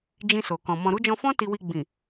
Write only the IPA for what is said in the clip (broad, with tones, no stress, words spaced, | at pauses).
d͡ʒĩ˧so˨kɔ̃˨ mɔ̃˨ɾu˨˦d͡ʒɔ̃˧fɔ̃˦ ti˧wi˧ ɡ͡bĩ˨